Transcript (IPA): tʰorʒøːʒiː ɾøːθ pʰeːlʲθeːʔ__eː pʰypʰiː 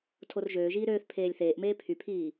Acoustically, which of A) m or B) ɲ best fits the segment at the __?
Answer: A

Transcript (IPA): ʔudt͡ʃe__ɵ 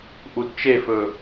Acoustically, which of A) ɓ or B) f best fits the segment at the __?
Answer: B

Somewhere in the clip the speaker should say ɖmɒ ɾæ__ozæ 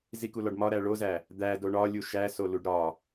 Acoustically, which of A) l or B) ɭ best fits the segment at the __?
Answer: B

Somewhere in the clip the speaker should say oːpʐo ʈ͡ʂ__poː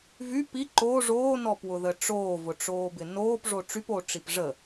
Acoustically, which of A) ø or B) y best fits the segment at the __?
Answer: B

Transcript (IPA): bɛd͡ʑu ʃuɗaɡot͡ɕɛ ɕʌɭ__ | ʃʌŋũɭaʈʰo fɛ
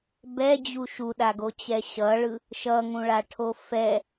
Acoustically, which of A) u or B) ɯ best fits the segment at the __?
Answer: B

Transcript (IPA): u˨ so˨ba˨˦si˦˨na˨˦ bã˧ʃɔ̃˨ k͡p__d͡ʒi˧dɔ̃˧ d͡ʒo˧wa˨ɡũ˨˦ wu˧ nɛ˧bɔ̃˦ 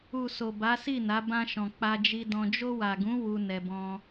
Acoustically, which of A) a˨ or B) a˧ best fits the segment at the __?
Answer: B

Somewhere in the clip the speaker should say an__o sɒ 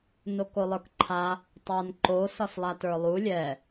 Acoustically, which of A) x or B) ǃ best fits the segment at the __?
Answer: B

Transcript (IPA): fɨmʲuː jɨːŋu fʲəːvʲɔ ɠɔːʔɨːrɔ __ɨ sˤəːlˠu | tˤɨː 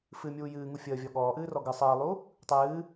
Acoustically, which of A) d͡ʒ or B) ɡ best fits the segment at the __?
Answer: B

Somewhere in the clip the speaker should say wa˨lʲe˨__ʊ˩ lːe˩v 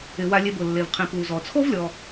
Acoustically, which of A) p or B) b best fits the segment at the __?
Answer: B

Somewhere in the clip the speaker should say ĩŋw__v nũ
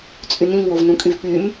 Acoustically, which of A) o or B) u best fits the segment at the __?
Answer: A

